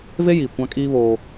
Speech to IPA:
ve˦jiː˨ kʷã˦kʼiː˦ βoː˦

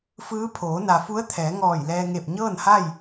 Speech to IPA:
fɯː˧˥pʰoː˩˧ na˩fu˧˥ə̯t̪ʰɛː˩˧ ŋɔː˧˩jlɛː˧ŋe˧˩p̚ ɲɤː˥˨nha˥˨j

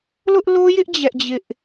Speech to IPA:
lʊ˦ʔlo˦jɪ˦ʔ d͡ʑɛ˦ʔd͡ʑɪ˦ʔ

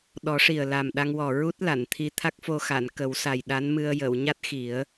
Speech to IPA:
ɗɔ˨˩˦ʂi˨˩ə̯ la˨˩mɗa˧ŋwɔ˨˩ ɹu˦˥t̚ la˨˩˨nt̪ʰi˧t̪ʰa˦˥k̚fo˧ xa˨˩˨nkə˨˩˦wsa˨˩j ɗa˧˥nmɨ˧ə̯ jə˨˩˨wɲa˦˥t̚ xi˨˩˦ə̯

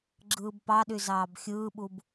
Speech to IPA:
ɡ͡ǁɯːbpɑɗy zɑːbxʲɯːɓub

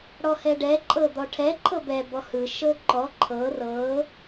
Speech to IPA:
ɽɔhɛɖɛ ǃʼɤd̪ɔʈʰɛ ǃʰɤbɛ bɔhɯ ʃɤǃɔ ǃʰɤ rɤ

